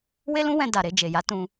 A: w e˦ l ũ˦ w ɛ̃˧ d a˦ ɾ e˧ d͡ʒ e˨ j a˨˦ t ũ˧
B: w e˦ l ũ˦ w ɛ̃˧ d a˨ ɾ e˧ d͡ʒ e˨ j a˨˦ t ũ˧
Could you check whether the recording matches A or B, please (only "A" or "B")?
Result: B